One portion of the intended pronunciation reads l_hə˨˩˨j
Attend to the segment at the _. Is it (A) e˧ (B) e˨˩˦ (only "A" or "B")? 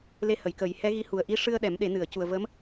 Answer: A